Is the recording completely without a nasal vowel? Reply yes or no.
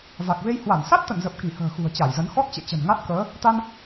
yes